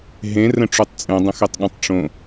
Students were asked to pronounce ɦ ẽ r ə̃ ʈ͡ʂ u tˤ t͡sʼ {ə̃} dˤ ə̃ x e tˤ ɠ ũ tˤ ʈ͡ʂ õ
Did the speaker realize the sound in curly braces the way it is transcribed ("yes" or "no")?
no